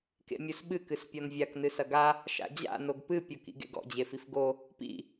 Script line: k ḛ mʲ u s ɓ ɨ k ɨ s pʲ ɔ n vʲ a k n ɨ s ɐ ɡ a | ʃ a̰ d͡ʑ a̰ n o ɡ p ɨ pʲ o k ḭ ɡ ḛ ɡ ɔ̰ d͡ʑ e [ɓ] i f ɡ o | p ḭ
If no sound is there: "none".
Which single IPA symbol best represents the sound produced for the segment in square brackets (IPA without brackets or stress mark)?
f